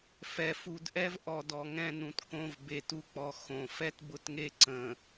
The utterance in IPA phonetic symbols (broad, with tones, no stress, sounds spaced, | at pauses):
f ɛ˨ f u˨ d ʔ ɛ˦ v ʔ ɔ˨ d ɔ˨ ŋ ɛ̃˦˨ n ũ˨ t k õ˦˨ v b e˨ t u˦ k͡p ɔ˨ x õ˨ f ɛ˦ t b ʊ˦˨ t ŋ e˦ ǀ ə̃˨